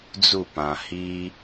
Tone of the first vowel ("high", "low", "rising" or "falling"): falling